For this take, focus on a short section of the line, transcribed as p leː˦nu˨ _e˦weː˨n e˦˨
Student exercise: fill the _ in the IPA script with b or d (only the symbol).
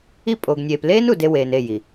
d